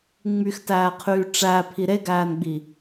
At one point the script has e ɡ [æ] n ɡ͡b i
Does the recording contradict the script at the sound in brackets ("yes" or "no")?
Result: yes